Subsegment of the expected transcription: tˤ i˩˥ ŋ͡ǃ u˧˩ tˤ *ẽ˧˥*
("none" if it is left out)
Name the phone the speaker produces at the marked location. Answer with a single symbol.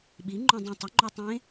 ẽ˧˥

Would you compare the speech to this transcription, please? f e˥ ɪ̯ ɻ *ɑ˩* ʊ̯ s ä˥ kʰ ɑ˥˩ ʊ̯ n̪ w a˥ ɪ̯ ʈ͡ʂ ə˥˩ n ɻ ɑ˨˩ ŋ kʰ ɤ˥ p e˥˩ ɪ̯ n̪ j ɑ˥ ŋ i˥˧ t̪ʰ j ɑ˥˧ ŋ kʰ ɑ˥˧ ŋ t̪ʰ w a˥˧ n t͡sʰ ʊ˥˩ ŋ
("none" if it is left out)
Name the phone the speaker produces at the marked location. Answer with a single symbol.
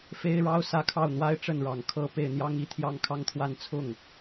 ɑ˥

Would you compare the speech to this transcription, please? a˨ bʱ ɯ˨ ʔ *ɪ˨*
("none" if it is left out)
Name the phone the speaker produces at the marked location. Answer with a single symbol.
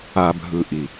i˨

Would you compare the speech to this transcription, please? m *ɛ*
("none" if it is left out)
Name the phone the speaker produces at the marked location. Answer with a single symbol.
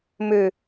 ø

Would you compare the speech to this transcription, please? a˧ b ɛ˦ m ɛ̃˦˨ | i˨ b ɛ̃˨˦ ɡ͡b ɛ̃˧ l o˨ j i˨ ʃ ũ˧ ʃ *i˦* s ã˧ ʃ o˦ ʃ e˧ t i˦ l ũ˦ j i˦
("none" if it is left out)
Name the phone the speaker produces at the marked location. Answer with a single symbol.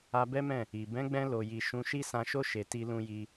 i˦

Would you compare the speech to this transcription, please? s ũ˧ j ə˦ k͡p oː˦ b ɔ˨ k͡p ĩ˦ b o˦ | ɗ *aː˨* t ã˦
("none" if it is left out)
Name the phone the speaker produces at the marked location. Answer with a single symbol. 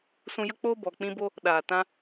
aː˨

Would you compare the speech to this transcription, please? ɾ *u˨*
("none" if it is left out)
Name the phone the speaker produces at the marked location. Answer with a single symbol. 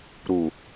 u˨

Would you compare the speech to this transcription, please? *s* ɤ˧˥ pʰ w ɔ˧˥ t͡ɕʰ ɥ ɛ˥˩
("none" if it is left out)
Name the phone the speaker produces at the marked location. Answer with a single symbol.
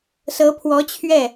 s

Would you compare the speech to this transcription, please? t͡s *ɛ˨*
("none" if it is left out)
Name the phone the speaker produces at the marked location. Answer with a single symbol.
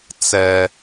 ɛ˦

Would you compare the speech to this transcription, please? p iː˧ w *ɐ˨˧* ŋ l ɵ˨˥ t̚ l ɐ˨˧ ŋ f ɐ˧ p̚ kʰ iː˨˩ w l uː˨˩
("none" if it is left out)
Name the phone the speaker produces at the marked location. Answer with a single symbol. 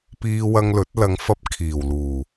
ɐ˧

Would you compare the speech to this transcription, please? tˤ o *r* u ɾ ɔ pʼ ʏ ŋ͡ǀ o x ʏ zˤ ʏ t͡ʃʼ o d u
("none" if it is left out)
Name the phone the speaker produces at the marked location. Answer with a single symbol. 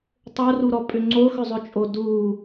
r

